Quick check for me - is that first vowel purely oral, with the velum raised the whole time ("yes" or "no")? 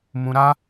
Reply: no